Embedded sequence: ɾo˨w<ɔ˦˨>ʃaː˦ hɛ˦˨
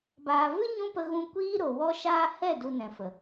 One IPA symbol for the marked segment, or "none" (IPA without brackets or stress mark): ɔ˦